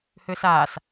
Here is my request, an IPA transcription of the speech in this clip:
hʏːsaːs

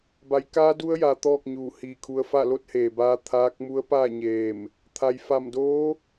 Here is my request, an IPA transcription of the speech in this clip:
ba˩˧jkaː˧˥du˧˥ə̯ja˩ t̪ɔː˥˨k̚ɲuː˧˩ hiː˧˩kʰu˧ə̯fa˥˨ lo˧˥t̚heː˩baː˧ t̪ʰaː˧˥k̚ mu˧˥ə̯paː˥˨ ɲeː˧˩m | t̪ʰa˩jfa˧˩mdoː˧˥

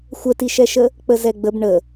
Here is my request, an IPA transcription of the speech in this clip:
xʷətiʃɛʃə | k͡pəzɛɡ͡bəb ɳə

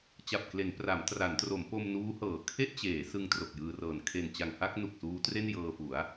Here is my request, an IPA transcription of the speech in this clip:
t͡ɕa˨˩p̚kle˩˦n pra˩˦mtra˩˦ntro˩˦m po˧mnuː˦˥hɤː˩˦ kʰe˥˩ʔt͡ɕeː˩˦ sɯ˧ŋ tro˨˩k̚jɯː˧rɤː˨˩n kʰe˨˩nt͡ɕa˨˩ŋ ha˥˩k̚ nu˨˩k̚suː˦˥ tre˥˩n jɤː˧fu˩˦a̯

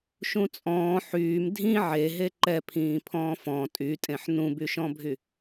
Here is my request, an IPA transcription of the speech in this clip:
ʃũt͡sʼɔ̃ː ħyːm dʱĩ ʕe ɦeǃɛpʰĩː pʰɔ̃ːfɔ̃ tʼytʼẽħ nũbyʃɔ̃bʱy

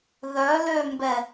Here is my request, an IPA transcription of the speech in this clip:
ðœ lømbɛ

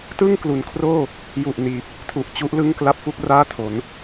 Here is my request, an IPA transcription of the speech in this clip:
tɯ˥˩ŋklu˩˦nkʰroː˥˩ | ju˨˩ʔniː˨˩p̚ | tʰu˨˩ʔt͡ɕu˦˥ʔlɯ˥˩ŋkla˥˩p̚ fu˥˩k̚raː˥˩tʰo˩˦n

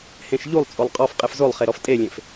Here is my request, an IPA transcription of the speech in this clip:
hẽʃʎulˠt͡sʼolˠ qʼɔf qʼefzolˠχe ɾɔftʼelʲẽf

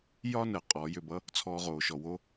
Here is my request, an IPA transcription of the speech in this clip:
jɒ˥nəː˩ qʼɔː˩˧jʏ˧bʌ˧˥ | t͡sʰɔː˧ʁoː˩ʃɔ˩wo˧˥

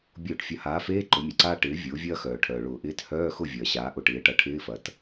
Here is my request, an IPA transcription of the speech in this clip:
bʲʊː˧˩˧ʈfʲɐ˩˥haː˩˥feː˧˥˧ ǃʊ˩˥mʲɐ˩ǀaː˥ ʈɪː˩˥ vʲʊː˩˥vʲɐː˥xœː˩ ʈʰœː˩ɭʊː˧˩˧ʔɪː˧˥˧t hœː˧˥˧xʊ˥˩ vʲɐː˩ɕaː˩˥ ʔʊ˧˩˧ʈɪː˩˥ʈɐ˩˥ ʈʰɪː˧˥˧fɐ˩t

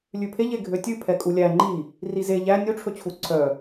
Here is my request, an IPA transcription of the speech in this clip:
lʲʉpʰe ʎeɡʱøtʲʉ pʰɛkʼulʲæ ŋ͡ǃi | rize ʎæ nʲu ʈ͡ʂʰɵt͡ɕʰuǀʰœ

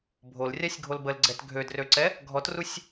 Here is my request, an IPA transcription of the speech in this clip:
bʱol rʲasʲɡʱolbəlɡ͡ǀɛt ɡʱødrøǀɛ | ɡʱɔtrusʲ

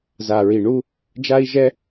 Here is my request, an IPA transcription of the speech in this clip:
za˨ɹi˨ ɳu˦ | d͡ʒa˦i̯ʒɛ˦

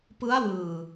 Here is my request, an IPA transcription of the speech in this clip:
pɯ˦˥a̯wɯː˨˩

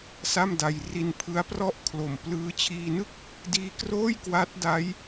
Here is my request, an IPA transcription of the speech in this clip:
sa˥˩mda˧j ri˧npʰɯ˦˥a̯prɔ˥˩ʔkʰlo˨˩m plɯː˦˥ t͡ɕʰiː˧nɯ˥˩k̚ | diː˦˥kroː˥˩j kwa˦˥t̚da˦˥j

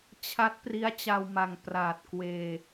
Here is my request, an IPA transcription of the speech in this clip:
t͡ɕʰa˦˥t̚pri˦˥a̯ t͡ɕa˧wma˨˩ŋ praː˨˩t̚ kweː˧

